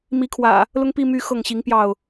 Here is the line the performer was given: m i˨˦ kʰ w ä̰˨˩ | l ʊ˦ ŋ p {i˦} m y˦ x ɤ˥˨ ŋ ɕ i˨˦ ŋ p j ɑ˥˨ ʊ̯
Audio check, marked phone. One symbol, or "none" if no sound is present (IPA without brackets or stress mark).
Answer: i˦